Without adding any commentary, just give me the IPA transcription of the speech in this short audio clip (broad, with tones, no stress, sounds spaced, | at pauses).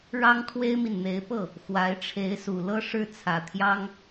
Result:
ɻ ɑ˥ ŋ kʰ w e˥ ɪ̯ m i˨ n n̪ e˧˥ ɪ̯ p ɤ˥˩ | x w a˧˥ ɪ̯ ʈ͡ʂʰ e˧˥ ɪ̯ s u˨˩ l ɤ˥˧ ʂ ɻ̩˥˩ t͡sʰ ä˨˩ t̪ʰ j ɑ˥ ŋ